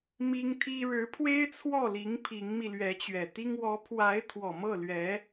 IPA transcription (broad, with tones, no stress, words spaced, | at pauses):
mi˥ŋt̪ʰi˥ ɻɻ̩˧˥pʰwe˥ɪ̯t͡sʰwɔ˥˩li˧˥ŋ pʰi˧˥ŋmi˧ lɥɛ˧˥t͡ɕɥɛ˨˩t̪i˥ŋ wɔ˧˥pʰwa˧˥ɪ̯ t̪ʰwɔ˨˩mɤ˥˩lɥɛ˧˥